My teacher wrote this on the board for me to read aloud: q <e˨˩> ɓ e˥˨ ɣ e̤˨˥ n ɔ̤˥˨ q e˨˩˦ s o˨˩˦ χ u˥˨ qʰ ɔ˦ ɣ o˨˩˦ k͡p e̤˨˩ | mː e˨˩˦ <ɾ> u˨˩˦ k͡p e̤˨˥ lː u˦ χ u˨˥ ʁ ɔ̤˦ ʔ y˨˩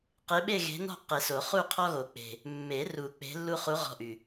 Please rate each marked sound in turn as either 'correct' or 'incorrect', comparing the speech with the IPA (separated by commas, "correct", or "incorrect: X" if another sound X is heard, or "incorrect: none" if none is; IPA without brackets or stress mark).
incorrect: e˨˥, incorrect: r